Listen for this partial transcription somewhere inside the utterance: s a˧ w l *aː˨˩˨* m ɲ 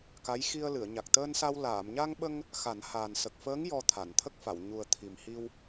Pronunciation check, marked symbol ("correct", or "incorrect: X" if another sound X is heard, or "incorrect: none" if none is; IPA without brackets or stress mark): correct